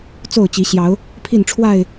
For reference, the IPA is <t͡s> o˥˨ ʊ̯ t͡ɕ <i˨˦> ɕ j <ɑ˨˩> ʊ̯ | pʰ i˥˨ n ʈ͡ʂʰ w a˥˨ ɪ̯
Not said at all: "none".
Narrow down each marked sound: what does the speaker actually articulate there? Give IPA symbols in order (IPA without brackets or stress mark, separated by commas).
t͡s, i˨˦, ɑ˨˦